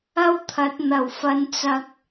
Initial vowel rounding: unrounded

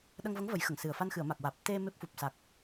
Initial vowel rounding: unrounded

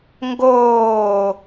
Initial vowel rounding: rounded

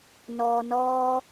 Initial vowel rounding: rounded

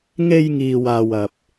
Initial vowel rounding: unrounded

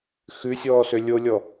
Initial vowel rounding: rounded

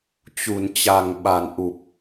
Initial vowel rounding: rounded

